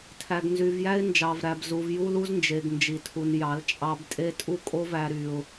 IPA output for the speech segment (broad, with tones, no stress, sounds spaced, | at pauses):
tʰ æ˨ ɡ n z y˨ v j æ˦ ɪ̯ n d͡ʒ ɑ˨ v ɾ æ˨ b z u˨ v j u˦ l u˦ z n d͡ʒ e˨ ɡ n d͡ʒ i˨ tʰ u˨ n j ɑ˨˦ l t͡ʃʼ ɑ˦ b tʼ e˦ tʼ u˦ kʼ o˦ v æ˦ ɾ y˦ ʊ̯